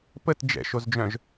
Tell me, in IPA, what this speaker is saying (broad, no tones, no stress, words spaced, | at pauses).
pət d͡ʒɛ̰ʃozd͡ʒœ̃ʒ